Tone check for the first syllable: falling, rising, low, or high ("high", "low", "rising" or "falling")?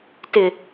low